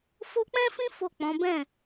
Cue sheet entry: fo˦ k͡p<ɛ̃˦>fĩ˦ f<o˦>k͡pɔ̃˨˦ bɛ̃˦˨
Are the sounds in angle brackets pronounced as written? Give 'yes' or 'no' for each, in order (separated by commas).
yes, no